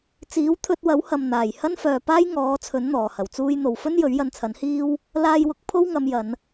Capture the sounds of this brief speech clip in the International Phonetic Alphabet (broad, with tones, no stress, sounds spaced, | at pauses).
t͡s iː˨˥ w t̪ʰ ɵ˧ t̚ w ɐ˨˥ w h ɐ˨ m n̪ aː˨˩ j h ɐ˥ n f œː˨ p aː˥ j ŋ ɔː˨˥ t͡sʰ ɵ˨˥ n n̪ ɔː˨˩ h ɐ˨˩ w t͡s uː˧ j n̪ o˨ w f ɵ˥ n j ɵ˨˥ ɥ j ɐ˧ n t͡sʰ ɐ˨˥ n h iː˥ w | l aː˧ j w ʊ˨˥ k̚ pʰ o˥ w ŋ ɐ˨˧ m j ɐ˨˧ n